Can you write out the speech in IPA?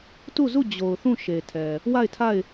t u˦˨ z u˦˨ d͡ʑ o˨ ʊ̯ θ ũ˦˨ ʃ e˨ tʰ ɛ˨ | w a˦˨ ɪ̯ tʰ a˦˨ ɪ̯

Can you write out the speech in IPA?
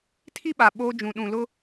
tʰ i˦ ɓ a˨ ɓ oː˦ d͡ʒ ũ˨ ɗ ũ˨ l ʊ˦

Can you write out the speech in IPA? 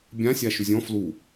bʲ ã sʲ a ʃ ʉ zʲ ɔ̃ f l u

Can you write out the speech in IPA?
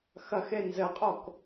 x ɐ x e n z ɘ qʼ o k

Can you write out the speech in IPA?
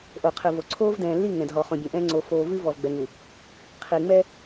ʔ o˨ qʰ ɨ˨ v o˨ ǀʰ oː˦ v d ɛ̃ː˨ lː i˦˨ ŋ ɛ̃˨ d ɦ ɔ˨ χ õ˨ bʲ õ˨ ʔ ɛ̃ː˦ ŋ͡ǀ o˨ f oː˨ v ɨ˦ v ɔ˨ v ɡ͡b ɛ˨ ŋ u˨ | qʰ i˨ ŋ͡m ɛ˦

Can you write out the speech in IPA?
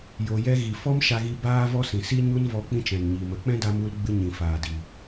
j o˨ j ɛ˧ ɣ i˨ f ɔ˦ m ʃ a˧ ɣ i˧ b aː˦ v ɔ˦ s ĩ˨ s i˦ ɲ u˦ n v ɔ˧ k͡p ĩ˧ t͡ʃ ɛ̃˨ n ɲ iː˨ m ə˨˦ k͡p ɛ̃˦ d a˧ m u˧ l ɡ͡b ɨ˧ ɲ ĩ˨ f aː˨ d i˨

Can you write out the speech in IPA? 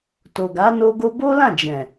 t o˨ ɡ a˨˦ n o˧ ɡ o˧ b o˦ l ã˦˨ d͡ʒ ɛ̃˨

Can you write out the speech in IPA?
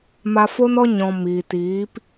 m a˧ f o˦ n ɔ˦ ɲ ɔ̃˧ m iː˨ t iː˨˦ p

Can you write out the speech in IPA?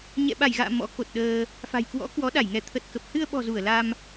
ɲ ɛ̰˧˨ ɓ a˧˩ j ɣ a̰ː˧˨ m ɔ̰˧˥ k o˨˩ t̚ ɗ əː˧ | f a̤˨˩ j k w ɔ̰˧˥ k w ɔ˨˦ ɗ a˧˩ j ŋ ɛ˧˩ t̪ʰ ə˨˩ t̚ k ə˨˩ p̚ h ɨ˧ ə̯ ɓ ɔ̤˨˩ z u˧˩ ə̯ l a˧ m

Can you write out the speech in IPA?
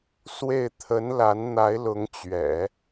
s w e˥˩ ɪ̯ t̪ʰ ə˧˥ n l a˧˥ n n̪ a˧˥ ɪ̯ l ʊ˧˥ ŋ t͡ɕ ɥ ɛ̰˨˩˦

